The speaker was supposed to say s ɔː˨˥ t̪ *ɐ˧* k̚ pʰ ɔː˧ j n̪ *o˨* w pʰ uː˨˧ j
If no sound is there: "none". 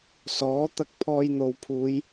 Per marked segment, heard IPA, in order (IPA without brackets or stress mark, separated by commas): ɐ˧, o˨